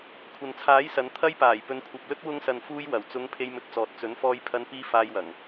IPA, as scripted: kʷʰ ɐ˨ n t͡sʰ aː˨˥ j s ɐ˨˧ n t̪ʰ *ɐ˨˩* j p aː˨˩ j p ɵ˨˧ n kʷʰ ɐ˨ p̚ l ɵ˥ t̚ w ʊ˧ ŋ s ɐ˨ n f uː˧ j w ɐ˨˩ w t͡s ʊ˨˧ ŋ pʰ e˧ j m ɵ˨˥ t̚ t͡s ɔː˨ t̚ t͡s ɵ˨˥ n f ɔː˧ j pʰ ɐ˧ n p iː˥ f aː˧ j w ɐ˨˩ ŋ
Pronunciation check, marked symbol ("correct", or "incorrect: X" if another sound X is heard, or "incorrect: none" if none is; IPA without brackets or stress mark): incorrect: ɐ˥